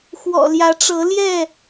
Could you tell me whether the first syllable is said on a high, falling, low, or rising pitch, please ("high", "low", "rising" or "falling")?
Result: low